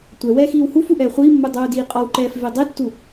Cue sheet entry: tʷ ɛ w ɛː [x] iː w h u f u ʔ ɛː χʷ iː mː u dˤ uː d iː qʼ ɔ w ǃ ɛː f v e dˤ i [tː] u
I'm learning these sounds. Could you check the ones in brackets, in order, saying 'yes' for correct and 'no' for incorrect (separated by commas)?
yes, yes